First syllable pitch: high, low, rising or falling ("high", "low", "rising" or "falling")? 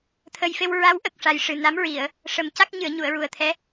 low